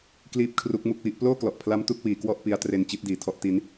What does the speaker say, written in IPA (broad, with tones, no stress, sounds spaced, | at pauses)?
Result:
k l iː˥˩ p̚ kʰ r u˦˥ k̚ m u˥˩ k̚ w i˥˩ ʔ p l oː˥˩ k l ɔ˨˩ ʔ pʰ l a˦˥ m t u˦˥ k̚ w iː˩˦ k w ɔ˥˩ ʔ p i˦˥ a̯ t r e˧ n t͡ɕ i˦˥ t̚ d iː˨˩ tʰ ɔ˦˥ ʔ t i˦˥ n